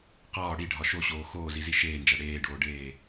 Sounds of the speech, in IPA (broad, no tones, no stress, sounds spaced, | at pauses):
q ɒː ɽ i ɖʱ ɒ ʃ o ɕ oː x oː z i z i ʃ eː n d͡ʒ æ ɽ eː ɖ oː ɖ eː